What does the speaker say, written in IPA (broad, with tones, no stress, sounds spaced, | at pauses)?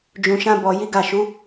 d͡ʒ ũ˧ ʃ ã˦ b ɔ˧ j i˦ ɡ a˦˨ ʃ u˨˦